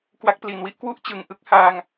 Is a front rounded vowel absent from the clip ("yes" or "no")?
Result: yes